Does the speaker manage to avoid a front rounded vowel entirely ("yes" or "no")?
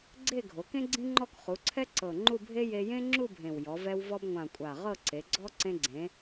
yes